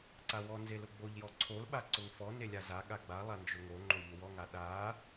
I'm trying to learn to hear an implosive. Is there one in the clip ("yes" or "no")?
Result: yes